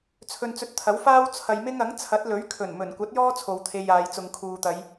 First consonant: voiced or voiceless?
voiceless